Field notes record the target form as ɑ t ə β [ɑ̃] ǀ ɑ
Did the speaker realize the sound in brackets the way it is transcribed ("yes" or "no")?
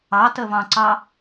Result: yes